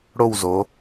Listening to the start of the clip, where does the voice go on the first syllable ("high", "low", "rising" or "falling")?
falling